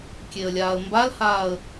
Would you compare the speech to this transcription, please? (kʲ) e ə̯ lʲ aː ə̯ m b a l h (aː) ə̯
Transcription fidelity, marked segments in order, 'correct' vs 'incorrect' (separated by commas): correct, correct